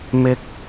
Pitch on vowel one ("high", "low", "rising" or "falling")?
low